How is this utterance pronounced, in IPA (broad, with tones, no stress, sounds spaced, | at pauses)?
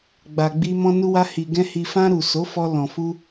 ɡ͡b a˨ ɡ͡b i˧ m ɔ̃˧ n u˧ w a˧ h i˨ ɡ ɛ̃˧ h i˨ f ã˧ ɾ u˨ s o˨˦ f ɔ˧ l ɔ̃˨ f u˧